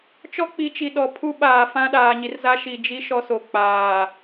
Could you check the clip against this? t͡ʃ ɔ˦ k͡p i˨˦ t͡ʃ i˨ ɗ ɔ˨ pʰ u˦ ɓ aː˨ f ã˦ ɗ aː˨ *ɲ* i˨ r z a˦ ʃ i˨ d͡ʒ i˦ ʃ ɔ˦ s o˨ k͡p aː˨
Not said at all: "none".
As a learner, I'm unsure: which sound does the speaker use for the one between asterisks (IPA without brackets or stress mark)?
ɲ